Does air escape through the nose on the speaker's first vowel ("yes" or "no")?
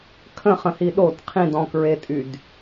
yes